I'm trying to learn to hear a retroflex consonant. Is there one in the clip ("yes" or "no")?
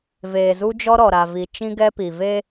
no